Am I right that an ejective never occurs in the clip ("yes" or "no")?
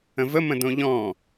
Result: yes